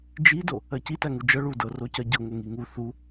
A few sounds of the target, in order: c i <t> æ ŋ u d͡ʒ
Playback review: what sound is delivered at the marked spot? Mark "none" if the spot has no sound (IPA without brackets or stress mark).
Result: t